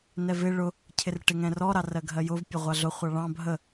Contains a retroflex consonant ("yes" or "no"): yes